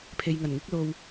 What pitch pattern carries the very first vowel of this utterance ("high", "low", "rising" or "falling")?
low